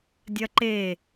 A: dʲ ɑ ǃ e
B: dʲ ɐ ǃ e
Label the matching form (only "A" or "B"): B